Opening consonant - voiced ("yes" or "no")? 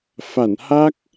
no